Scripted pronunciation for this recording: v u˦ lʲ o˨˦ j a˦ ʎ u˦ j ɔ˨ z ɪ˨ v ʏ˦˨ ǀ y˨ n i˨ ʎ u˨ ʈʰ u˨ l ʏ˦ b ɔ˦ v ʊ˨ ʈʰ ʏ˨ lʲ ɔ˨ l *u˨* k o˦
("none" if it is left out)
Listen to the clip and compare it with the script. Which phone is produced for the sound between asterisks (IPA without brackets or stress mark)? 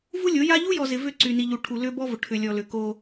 ʏ˨